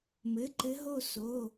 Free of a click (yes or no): no